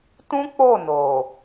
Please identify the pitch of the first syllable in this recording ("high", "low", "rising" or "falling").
high